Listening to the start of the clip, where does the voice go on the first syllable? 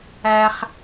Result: high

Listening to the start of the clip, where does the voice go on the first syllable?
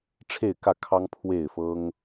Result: falling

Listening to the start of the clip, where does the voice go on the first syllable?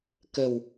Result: low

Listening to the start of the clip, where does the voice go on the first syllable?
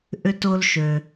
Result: high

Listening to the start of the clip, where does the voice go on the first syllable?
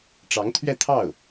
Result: rising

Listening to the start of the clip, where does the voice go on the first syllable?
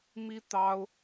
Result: high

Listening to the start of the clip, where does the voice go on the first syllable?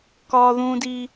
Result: high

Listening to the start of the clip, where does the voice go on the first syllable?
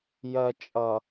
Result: low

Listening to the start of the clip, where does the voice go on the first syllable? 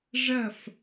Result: falling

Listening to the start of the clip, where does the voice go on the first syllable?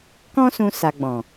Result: high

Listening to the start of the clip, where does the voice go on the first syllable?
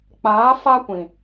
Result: rising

